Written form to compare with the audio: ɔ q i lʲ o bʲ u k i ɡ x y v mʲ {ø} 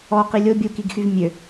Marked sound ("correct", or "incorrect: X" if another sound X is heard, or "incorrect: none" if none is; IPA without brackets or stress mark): correct